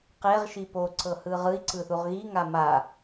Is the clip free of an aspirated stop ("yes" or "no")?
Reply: yes